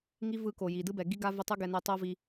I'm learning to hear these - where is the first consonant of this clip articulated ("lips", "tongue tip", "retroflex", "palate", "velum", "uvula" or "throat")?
velum